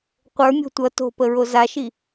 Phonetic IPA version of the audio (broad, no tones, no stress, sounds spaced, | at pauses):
qʷ ə˞ mʲ o̤ tʷ ʌ t o̤ p ə ɹ o z a ʃ i